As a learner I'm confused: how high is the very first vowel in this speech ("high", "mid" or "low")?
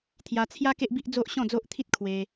low